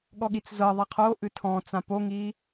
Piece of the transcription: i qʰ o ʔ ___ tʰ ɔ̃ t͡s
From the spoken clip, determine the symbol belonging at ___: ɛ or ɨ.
ɨ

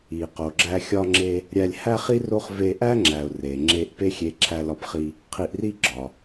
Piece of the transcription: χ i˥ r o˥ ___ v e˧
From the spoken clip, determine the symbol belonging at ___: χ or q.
χ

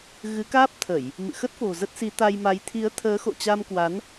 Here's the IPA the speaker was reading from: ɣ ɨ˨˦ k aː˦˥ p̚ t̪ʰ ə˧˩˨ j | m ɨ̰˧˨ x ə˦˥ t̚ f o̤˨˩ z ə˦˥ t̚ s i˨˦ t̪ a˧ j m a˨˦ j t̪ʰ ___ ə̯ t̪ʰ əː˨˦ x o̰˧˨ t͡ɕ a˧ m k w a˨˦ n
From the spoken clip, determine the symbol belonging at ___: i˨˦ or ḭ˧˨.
i˨˦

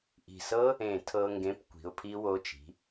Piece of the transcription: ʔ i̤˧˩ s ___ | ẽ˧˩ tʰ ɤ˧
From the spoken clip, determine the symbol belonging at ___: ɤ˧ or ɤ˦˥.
ɤ˦˥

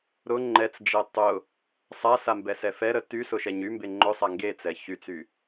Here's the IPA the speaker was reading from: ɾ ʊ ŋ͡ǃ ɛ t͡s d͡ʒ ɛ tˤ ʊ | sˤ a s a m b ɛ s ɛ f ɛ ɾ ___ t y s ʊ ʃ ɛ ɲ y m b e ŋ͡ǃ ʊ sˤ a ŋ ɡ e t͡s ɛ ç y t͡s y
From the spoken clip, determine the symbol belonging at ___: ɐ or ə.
ə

